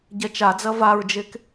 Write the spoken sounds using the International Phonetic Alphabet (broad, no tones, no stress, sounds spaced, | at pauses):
ɟ ɛ t͡ʃ a d͡z ɐ v a ɹ d͡ʒ e k